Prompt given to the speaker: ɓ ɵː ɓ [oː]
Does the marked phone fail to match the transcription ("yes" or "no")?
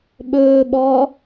yes